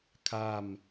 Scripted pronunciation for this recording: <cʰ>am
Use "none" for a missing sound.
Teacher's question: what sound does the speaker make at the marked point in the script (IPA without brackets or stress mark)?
kʰ